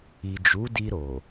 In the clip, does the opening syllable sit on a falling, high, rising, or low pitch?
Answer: low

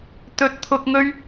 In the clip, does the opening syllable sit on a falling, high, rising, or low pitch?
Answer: low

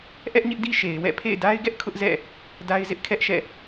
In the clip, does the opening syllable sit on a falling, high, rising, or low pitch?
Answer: high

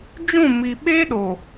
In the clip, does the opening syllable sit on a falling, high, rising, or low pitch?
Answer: falling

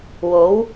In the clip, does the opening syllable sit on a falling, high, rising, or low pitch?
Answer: rising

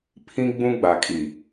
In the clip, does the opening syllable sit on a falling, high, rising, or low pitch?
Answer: high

